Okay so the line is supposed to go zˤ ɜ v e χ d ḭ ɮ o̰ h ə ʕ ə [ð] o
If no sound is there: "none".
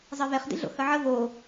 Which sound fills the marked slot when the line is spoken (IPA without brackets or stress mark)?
v